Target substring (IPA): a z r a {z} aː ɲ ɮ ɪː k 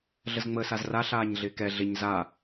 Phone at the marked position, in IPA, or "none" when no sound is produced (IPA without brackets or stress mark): ɬ